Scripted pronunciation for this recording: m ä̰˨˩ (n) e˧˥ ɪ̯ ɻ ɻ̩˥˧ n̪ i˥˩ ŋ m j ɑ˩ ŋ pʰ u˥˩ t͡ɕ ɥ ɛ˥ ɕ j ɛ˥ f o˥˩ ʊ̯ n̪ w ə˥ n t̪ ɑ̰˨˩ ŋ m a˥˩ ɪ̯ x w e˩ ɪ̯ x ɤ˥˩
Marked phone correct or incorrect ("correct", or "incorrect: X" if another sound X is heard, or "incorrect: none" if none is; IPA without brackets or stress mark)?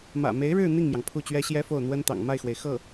incorrect: m